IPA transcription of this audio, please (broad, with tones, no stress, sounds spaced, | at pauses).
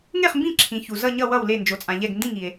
ŋ e˥˨ χ m b ĩ˥˨ ǁʰ ĩ˨ ç u˨ z ʌ˥˨ ɲ ʌ˥˨ w ʌ˥˨ w l e˥˨ n d͡ʒ o˨ t͡sʼ ã˨ ʎ ɛ˥˨ ɡ n d ĩ˥˨ ŋ i˨ e̯